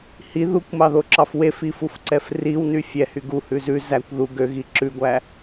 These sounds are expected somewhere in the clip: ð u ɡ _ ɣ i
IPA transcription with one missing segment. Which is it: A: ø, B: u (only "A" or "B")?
A